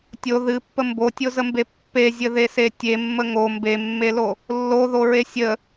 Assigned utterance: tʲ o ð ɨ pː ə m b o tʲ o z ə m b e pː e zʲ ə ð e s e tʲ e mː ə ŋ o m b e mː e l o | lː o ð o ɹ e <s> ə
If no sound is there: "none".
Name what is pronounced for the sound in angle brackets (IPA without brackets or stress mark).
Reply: sʲ